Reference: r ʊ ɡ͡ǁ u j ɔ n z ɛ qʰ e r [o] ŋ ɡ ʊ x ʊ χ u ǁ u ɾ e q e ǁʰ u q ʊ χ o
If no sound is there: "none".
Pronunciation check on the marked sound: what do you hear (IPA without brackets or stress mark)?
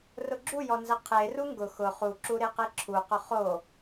u